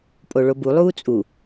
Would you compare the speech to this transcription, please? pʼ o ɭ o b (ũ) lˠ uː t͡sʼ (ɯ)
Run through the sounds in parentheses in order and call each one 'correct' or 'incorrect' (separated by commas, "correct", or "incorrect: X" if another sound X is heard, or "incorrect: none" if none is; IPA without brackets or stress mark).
incorrect: u, incorrect: u